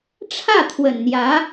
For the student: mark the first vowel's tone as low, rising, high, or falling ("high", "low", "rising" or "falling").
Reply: falling